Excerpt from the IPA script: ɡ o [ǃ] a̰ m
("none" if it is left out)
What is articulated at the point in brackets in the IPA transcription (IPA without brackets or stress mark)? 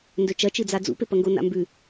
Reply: n